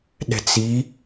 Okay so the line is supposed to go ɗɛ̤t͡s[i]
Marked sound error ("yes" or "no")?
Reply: no